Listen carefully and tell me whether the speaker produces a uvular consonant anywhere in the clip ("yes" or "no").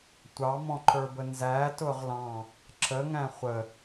yes